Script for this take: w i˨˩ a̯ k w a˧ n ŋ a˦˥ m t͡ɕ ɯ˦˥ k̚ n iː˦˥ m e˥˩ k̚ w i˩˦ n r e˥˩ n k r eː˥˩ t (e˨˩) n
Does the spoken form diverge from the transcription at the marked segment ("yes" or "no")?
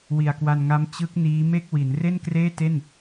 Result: yes